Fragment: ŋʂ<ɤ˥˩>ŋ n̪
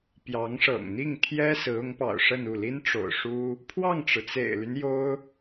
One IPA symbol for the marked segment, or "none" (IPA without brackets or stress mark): ɤ̰˨˩